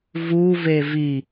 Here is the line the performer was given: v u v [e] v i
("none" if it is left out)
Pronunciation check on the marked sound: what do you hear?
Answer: e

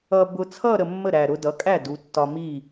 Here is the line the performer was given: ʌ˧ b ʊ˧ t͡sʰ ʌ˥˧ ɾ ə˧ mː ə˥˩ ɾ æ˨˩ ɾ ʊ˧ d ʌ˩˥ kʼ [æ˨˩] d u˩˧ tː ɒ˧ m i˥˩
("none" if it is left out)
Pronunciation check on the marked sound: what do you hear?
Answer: æ˥˩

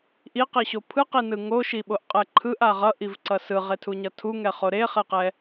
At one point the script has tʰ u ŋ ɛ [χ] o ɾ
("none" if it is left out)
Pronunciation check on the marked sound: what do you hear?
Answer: χ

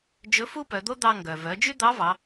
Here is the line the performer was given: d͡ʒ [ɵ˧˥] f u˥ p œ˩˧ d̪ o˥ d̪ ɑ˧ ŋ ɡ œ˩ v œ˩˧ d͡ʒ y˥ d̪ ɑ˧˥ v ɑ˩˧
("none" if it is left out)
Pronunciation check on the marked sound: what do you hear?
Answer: ɵ˧˥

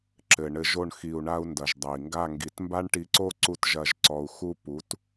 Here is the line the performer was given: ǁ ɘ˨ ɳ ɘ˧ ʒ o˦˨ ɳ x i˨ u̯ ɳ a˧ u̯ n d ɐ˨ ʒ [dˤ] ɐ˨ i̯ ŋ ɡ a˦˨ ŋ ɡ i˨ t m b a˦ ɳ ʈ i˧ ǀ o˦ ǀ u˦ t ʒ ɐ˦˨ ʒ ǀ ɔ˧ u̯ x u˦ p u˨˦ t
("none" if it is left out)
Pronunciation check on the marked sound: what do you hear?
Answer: dˤ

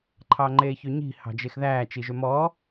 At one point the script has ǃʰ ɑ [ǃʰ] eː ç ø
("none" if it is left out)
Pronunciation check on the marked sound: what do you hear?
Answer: ŋ͡ǃ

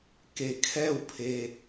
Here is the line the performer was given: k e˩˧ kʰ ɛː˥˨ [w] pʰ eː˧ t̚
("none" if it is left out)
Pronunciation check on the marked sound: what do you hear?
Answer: w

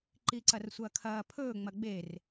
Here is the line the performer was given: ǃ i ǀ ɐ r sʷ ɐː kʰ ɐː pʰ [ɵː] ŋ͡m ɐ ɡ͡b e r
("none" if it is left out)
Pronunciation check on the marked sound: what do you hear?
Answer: ɵː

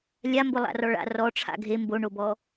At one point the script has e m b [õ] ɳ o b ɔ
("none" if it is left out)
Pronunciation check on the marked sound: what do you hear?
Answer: o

